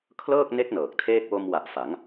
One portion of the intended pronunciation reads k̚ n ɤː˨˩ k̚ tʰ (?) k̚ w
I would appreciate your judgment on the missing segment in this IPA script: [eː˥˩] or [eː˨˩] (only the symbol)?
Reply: eː˥˩